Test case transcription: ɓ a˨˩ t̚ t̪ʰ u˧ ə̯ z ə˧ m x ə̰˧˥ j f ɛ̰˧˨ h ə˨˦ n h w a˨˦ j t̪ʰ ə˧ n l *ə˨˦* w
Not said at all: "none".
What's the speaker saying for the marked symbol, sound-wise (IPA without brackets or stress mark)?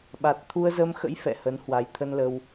ə˧